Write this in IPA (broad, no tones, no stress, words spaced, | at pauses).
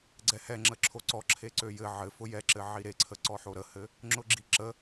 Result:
ɡ͡ǀɛhɛŋ͡ǁə ǁʰoǀɔ ǁʰeǀøjɘ ʕɘ fʊjɛǁɘ ʕiɾeǀʰə ǀɔħoɾəhɘ | ŋ͡ǁʊɡ͡ǁiǁə